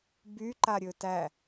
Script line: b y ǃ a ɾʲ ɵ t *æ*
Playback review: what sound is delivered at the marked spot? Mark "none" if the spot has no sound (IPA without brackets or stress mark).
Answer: æ